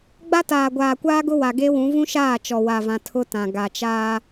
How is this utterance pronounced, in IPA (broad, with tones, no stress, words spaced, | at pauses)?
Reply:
ɡ͡ba˦taː˨ɡʷaː˨kʷaː˦ ɡʊ˦wa˨ɡe˦wũ˨˦ vũ˦ʃaː˦˨ t͡ʃɔ˨wa˨vã˨ tʰʊ˦tã˨ ɡa˨t͡ʃaː˦